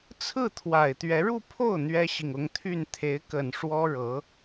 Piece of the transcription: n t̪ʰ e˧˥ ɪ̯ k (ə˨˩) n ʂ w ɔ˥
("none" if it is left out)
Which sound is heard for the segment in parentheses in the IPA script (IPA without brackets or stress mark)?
ə˨˩